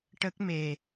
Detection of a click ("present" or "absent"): absent